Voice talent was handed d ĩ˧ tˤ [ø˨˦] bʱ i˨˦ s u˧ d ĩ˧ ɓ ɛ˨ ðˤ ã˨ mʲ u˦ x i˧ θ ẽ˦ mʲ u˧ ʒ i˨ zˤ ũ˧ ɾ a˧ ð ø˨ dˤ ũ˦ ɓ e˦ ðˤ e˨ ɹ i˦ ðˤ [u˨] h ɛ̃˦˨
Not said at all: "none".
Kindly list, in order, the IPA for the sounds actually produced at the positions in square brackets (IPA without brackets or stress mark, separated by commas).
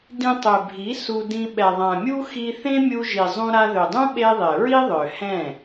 ø˨, ø˨